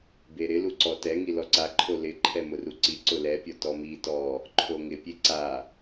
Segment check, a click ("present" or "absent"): present